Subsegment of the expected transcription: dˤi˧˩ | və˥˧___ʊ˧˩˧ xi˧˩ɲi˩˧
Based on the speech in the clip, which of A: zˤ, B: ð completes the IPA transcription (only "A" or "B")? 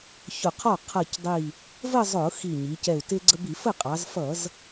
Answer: A